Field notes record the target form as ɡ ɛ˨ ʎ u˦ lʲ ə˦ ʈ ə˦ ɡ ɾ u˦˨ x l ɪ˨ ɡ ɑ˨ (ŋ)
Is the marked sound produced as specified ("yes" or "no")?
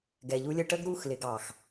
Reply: no